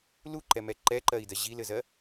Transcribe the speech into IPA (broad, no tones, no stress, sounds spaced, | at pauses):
l u ǃ ɛ m ɛ ǃ ɛ ǃ ɜ i̯ d ɜ ʑ i l ɘ z ɜ